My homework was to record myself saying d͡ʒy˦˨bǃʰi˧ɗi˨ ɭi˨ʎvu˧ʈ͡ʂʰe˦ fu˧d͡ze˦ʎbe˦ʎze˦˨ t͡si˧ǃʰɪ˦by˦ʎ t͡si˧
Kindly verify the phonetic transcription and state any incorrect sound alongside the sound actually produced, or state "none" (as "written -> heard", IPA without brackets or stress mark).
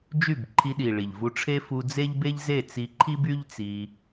ɪ˦ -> i˦